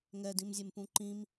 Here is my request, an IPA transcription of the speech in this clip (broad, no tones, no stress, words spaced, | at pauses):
ŋɛdĩmzʲempũ ǃĩm